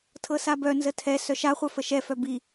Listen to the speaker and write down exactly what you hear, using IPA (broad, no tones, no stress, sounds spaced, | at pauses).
tʰ ɤ s a b œ n z ə tʰ ɛ s œ ʃ a χʷ œ f ə ʃ ɛ f œ b i